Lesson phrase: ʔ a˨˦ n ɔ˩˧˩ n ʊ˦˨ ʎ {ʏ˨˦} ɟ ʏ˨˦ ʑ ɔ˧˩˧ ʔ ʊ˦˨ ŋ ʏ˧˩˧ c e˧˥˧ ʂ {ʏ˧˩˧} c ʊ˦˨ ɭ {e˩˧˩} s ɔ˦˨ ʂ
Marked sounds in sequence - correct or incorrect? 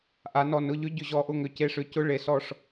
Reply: incorrect: ʏ˧˥˧, incorrect: ʏ˧˥˧, correct

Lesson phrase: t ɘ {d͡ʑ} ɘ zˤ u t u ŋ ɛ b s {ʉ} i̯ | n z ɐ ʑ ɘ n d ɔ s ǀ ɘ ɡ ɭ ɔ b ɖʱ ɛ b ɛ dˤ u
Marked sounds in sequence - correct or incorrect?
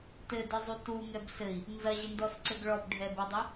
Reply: incorrect: d, incorrect: ɘ

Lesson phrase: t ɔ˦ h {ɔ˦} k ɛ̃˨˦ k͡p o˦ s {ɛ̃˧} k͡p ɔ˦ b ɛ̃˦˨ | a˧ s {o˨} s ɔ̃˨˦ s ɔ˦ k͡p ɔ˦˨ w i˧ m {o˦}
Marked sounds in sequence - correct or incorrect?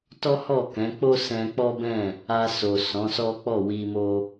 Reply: incorrect: ɔ˦˨, correct, correct, correct

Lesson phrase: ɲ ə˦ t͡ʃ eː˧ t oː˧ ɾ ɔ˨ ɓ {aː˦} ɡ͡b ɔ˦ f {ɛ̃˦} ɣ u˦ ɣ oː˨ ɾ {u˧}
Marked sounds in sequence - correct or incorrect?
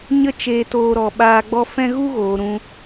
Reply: incorrect: aː˧, correct, incorrect: ũ˧

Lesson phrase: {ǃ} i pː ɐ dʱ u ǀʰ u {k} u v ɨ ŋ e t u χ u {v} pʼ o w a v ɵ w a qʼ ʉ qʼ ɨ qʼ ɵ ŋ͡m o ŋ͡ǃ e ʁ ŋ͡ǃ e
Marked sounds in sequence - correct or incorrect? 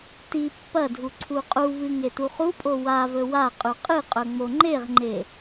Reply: incorrect: t, incorrect: qʼ, incorrect: none

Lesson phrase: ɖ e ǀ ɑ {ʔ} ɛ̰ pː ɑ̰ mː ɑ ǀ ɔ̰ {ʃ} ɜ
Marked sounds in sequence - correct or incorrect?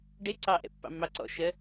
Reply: correct, correct

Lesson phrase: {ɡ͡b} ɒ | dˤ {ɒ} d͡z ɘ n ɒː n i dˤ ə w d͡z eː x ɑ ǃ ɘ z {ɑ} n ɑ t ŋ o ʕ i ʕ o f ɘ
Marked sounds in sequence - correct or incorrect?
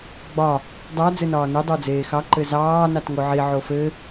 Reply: correct, incorrect: ɑ, incorrect: ɑː

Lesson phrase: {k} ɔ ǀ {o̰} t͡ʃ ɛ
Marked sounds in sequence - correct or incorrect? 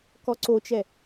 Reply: correct, incorrect: o

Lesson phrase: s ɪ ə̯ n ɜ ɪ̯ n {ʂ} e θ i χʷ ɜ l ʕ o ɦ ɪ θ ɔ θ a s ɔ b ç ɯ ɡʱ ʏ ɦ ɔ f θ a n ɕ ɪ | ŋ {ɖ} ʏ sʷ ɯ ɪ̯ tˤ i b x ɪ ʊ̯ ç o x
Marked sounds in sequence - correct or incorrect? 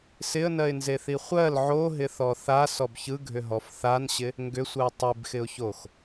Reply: incorrect: z, incorrect: ɡ

